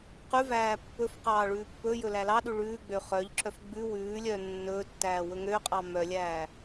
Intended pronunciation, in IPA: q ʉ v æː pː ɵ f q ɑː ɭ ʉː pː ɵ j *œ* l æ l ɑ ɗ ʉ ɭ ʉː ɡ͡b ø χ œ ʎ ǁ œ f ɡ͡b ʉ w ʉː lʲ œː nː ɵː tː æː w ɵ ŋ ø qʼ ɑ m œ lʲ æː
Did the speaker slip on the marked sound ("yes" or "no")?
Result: yes